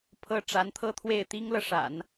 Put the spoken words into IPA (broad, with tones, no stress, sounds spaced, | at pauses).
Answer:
pʰ ɤ˥ ʈ͡ʂ a˧˥ n t̪ʰ ɤ˥˧ t̪ʰ w e˥˩ ɪ̯ t̪ i˥ ŋ l ɤ˨ ʂ a̰˨˩˦ n